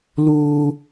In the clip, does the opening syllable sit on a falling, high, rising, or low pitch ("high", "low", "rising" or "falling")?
high